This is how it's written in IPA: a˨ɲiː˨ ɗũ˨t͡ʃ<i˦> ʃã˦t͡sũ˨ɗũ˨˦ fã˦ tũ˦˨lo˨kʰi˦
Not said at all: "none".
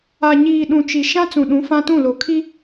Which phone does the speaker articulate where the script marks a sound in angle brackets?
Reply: i˨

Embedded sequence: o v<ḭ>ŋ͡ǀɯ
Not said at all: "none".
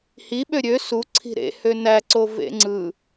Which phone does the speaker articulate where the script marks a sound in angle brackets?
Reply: ḛ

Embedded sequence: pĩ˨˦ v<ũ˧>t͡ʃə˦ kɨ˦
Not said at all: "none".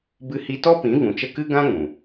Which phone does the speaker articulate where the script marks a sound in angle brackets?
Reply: ũ˨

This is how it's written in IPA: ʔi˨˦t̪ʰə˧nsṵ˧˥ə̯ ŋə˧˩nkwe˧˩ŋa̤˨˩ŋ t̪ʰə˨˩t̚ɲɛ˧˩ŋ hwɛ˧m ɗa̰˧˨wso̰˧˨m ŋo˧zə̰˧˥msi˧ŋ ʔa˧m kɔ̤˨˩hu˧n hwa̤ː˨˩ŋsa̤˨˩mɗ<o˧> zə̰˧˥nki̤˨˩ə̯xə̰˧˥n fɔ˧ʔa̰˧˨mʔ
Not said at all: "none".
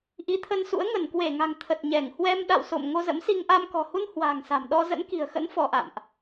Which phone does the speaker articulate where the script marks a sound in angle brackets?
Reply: ɔ˧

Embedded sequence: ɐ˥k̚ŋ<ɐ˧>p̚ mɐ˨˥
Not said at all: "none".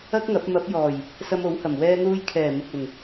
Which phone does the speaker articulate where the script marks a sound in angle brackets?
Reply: ɐ˨˥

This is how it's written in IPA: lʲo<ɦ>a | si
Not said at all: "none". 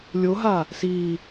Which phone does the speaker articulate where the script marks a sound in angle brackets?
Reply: ɦ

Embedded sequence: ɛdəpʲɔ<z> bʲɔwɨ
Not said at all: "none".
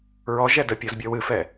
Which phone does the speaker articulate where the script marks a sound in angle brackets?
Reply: z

